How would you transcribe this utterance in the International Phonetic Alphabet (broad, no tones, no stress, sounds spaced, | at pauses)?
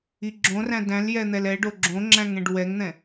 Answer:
i ɡ͡ǁ õ r æ̃ d æ̃ l j ɛ n̪ ɛ l ɛ ɖ o ɡ͡ǁ õ ŋ͡ǁ æ̃ ŋ ɛ̃ ɖ w ɛ ŋ n̪ ɛ̃